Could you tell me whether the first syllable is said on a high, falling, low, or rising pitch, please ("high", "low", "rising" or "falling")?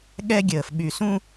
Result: high